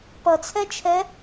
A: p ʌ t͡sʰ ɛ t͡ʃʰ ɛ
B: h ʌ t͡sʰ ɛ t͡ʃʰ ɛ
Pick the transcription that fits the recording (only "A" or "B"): A